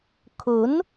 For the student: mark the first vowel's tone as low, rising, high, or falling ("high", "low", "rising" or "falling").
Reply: rising